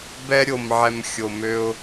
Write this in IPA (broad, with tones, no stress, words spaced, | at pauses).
bɛ˦ɾʲo˨mʕɛ˨m xʲo˨mø˦ʊ̯